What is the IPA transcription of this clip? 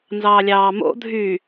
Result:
n z ɑː lʲ ɑː m o̰ dʱ y

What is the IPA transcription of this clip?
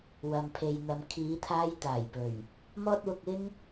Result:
w ɐ˨ m pʰ e˨ j n̪ ɐ˨ m kʰ iː˨˧ t̪ʰ aː˥ j t̪ aː˨˩ j p ɵ˨˩ ɥ | m ɔː˥ t̚ w ʊ˧ k̚ ɪ˥ ŋ

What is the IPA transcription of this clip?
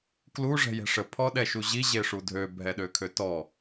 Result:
k l u ʐ ɛ̤ j ɛ̤ ʂ ə pʰ ɔ ɗ ɛ ʃ u ʑ i ʑ e ʂ u dʱ ø bʱ ɛ ɗ ø kʰ ø t ɔ

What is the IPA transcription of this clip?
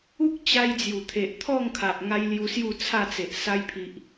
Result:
u˦ k̚ t͡ɕ a˧ j d͡z j u˨˩ t̪ʰ e˨ ʔ t̪ʰ ɔ˥˧ ŋ kʰ a˨ ʔ ŋ a˧ j l j u˧ s j u˥˧ t͡sʰ a˥˧ t͡s e˨ ʔ s a˧ j pʰ i˨ ʔ

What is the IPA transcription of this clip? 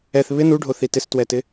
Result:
ɛ θ β ɪ n u ɖʱ o θ i t ɪ s t w ɛ t ɪ

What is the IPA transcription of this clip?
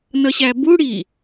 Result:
n ʌ ɕ æ b u ɽ i

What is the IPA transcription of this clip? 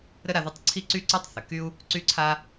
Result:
ɾ ə˥ ɾ a˥ ð u˥ tˤ ǀʰ i˥ ǀ y˥ ǀ ø˥ tˤ θ ə˩ k y˥ u̯ | ǀ y˥ ǀʰ a˥

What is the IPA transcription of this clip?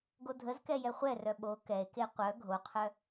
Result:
ɡ o dʱ ə z k ɛ j ɛ χʷ ɛ r œ ɓ o k ɛ e̯ k e qʷ œ ɡʱ o qʰ œ

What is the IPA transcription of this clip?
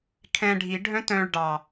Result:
kʰ ɛ̃ ɖʱ i ɖʱ œ̃ t œ̃ ɭ ɖ ɑ

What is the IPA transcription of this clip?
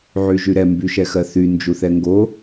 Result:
ʕ y ʒ y ɾ ɛ m b y ʃ ɛ x ɜ θ y n d͡ʒ u θ ɛ ŋ ɡ o

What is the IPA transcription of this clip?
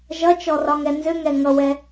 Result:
ʒ ʌ t͡ʃ ɔ r ɒ ŋ ɛ n z ʏ ŋ ɛ ŋ ʌ w ɛ

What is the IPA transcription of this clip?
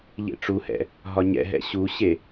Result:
ʎ ḛ ʈ͡ʂ u h ɛ̰ | ɦ ɒ ɲ ɛ̰ ɦ ɛ̰ ɕ u ɕ e

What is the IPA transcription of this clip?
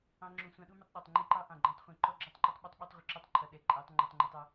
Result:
ɑ̃˧ ŋ͡ǁ ũ˨ sʷ ɑ̃˧ ɗ u˦ m ə˧ tˤ ɗ ɑ˨ tˤ ŋ͡ǃ i˦ ǃ ɑ˦ ʔ ɑ̃˨ ɡ͡ǃ ɑ̃˧ tˤ χʷ ĩ˨ ǃ ɔ˦ ɡ͡ǁ ɔ˦ tˤ ǃ ʊ˦ tˤ ɓ ʌ˦ tˤ ɓ i˧ tˤ ʁʷ ɪ˧ ǁ u˧ tˤ ǃʰ ʌ˨ ɗ ɛ˨ ǃʼ æ˨˦ tˤ ŋ͡ǃ æ˧ tˤ ŋ͡ǃ ə˞˧ tˤ ʌ˦

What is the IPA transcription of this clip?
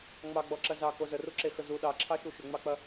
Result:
ŋ͡m ɑ ɡ͡b ɔ ǁ ɐ z ɑ k o z ə r u ǁ e x ə z u ɗ ɑ ǁʰ ɑ ʃ u ʃ ʏ ŋ͡m ɑ k͡p ɐ

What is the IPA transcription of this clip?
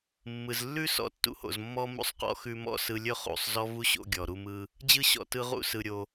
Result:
mː ɯ˩ z lː ʉ˥ s ɔ̰˧ tː ṵ˧ h o̰˩ z mː ɔ˥ m ṵ˧ sˤ q ɔ̰˧ x ʉ˧ m ɔ̰˧ s ɯ˧ lʲ ɵ˥ χ ṵ˩ sˤ z ɔ˥ v u˥ ɕ o̰˧ ɡʲ ɔ˩ ɾ u˧ m ɯ˧ | d͡ʑ ɯ˥ ɕ ɔ̰˩ t ɯ˧ ʁ ṵ˥ s ɯ˩ ɾʲ o˩

